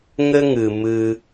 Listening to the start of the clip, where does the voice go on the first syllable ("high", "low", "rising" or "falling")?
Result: high